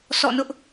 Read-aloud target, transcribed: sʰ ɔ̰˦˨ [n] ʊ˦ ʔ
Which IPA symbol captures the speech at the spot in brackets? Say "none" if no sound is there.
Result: n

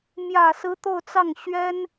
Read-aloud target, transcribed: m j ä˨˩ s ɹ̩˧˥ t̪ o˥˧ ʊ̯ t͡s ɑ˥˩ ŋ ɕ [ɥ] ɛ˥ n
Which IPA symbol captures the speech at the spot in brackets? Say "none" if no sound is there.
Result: ɥ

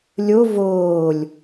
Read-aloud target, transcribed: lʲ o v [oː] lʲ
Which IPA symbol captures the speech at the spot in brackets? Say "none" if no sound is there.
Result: oː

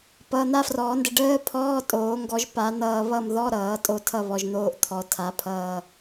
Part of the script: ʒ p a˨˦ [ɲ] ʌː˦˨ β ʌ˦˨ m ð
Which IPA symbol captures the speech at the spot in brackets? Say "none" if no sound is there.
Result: n̪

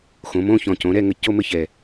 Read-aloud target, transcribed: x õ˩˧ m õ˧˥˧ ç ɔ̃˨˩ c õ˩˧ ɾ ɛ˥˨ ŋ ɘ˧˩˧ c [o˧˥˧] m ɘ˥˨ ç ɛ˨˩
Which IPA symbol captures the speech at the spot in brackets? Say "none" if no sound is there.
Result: o˧˥˧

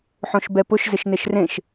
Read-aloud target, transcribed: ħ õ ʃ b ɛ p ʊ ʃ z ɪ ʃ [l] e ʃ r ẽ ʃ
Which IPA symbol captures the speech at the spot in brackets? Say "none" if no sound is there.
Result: n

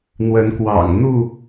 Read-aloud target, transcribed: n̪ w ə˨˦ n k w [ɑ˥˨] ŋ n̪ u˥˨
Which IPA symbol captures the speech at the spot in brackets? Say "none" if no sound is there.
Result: ɑ̰˨˩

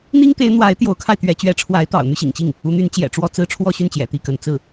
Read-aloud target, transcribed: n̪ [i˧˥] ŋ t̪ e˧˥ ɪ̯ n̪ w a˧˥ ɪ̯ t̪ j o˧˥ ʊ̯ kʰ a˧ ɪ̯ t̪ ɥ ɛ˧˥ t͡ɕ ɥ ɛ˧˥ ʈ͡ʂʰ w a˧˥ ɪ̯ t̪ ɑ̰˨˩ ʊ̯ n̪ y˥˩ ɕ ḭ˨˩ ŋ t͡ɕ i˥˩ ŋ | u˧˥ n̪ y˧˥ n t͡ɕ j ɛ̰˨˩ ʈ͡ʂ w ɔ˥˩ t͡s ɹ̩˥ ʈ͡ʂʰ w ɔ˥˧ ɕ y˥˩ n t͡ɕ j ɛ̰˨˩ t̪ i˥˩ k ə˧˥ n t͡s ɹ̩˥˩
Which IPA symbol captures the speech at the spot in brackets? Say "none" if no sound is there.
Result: i˥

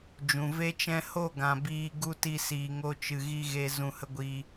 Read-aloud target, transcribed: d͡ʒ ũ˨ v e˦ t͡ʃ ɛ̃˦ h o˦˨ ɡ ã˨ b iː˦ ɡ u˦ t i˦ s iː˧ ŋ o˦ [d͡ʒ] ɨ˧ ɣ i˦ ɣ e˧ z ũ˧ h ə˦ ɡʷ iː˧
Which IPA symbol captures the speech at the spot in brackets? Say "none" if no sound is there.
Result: t͡ʃ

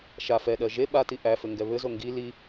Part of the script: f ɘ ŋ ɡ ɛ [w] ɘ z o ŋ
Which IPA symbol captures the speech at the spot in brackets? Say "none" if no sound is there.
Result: β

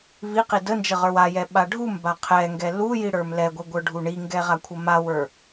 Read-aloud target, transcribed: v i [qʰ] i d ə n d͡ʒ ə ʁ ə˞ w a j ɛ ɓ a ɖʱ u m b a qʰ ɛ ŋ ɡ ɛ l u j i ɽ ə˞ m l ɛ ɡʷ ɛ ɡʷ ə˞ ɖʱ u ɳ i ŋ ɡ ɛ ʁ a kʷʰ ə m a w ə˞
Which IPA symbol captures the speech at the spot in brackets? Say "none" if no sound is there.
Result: q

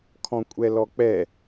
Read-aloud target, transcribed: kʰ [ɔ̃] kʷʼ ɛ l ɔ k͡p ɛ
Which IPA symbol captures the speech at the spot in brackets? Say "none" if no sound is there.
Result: ɔ̃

